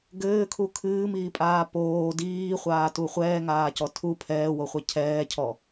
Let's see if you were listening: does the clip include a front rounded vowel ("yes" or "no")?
no